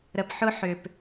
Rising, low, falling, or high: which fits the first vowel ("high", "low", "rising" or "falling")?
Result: low